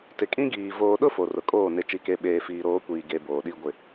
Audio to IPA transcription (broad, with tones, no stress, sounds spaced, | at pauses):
t ɪ˨ kʼ ĩ˦ ɡ iː˨ v oː˨ ɗ ʊ˦ f o˨ r ʊ˨ kʼ oː˦˨ n ɪ˨ t͡ʃ i˨ k e˨ ɓ eː˨ f iː˨ ɾ oː˨˦ kʷ iː˨ ɡ e˦ b oː˨ ɗ i˦ ɡʷ ɪ˨